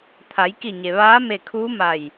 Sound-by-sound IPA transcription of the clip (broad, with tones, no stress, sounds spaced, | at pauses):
t̪ʰ a˩˧ j k i˧˩ ɲ e˩ ʋ aː˧˥ m e˧˩ kʰ uː˧˥ m a˧˩ j